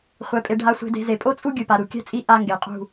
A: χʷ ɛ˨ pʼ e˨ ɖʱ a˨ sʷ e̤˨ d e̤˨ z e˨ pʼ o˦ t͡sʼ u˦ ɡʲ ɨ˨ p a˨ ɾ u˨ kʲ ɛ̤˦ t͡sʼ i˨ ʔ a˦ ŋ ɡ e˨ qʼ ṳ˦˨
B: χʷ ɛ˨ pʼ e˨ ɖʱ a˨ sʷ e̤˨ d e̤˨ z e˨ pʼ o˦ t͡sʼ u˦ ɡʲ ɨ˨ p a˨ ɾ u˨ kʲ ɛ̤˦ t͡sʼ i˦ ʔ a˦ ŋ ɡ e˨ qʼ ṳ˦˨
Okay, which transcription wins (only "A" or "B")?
B